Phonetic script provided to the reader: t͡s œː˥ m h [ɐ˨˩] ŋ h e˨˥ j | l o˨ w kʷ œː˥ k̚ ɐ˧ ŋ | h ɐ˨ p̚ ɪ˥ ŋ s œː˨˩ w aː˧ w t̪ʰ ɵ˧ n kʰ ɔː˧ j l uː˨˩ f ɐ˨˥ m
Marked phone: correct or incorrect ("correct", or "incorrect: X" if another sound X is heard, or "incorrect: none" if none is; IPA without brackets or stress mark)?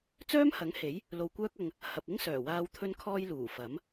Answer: incorrect: ɐ˨˥